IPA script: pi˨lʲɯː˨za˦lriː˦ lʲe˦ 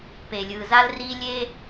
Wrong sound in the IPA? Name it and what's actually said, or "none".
i˨ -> e˨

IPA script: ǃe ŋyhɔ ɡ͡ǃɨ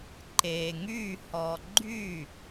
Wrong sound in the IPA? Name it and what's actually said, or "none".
ɨ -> y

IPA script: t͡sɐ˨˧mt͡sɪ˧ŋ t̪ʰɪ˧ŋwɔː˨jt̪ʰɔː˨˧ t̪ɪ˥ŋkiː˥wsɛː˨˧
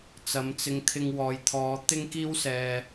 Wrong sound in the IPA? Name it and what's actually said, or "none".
ɛː˨˧ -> ɛː˨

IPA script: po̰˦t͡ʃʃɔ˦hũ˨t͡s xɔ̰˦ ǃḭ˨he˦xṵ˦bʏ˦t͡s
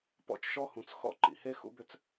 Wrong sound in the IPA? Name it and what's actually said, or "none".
o̰˦ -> ɔ̰˦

